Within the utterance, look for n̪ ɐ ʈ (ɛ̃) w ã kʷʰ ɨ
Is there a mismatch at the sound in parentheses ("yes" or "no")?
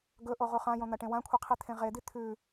yes